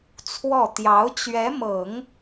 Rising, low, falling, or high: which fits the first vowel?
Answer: falling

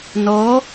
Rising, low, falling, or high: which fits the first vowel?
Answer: rising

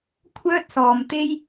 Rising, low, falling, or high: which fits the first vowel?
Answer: high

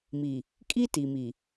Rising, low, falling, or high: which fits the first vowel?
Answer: low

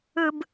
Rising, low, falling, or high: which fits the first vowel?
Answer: low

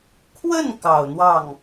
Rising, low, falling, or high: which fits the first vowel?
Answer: falling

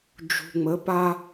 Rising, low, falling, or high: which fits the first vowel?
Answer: low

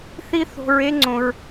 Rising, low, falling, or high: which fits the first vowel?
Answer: high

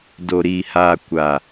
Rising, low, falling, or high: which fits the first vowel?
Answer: low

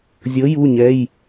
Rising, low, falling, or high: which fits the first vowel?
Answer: rising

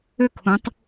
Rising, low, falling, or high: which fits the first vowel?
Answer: falling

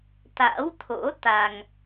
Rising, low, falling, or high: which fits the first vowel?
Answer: rising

